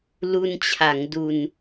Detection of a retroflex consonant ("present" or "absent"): absent